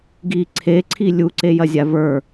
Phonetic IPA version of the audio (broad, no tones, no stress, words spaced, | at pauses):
ɡi ǀʰeǀʰi lʲuǀejɐzʲa və˞